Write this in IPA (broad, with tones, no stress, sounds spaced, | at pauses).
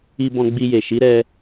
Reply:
i˧ b ɔ̃˧ ɡ͡b i˧ j e˨ ʃ i˨˦ ɾ ɛ˧